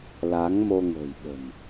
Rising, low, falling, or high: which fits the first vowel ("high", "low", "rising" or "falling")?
rising